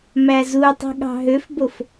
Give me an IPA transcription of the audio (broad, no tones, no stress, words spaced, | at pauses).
mæzutˤi̤ ɠɑ̤ɦøfbof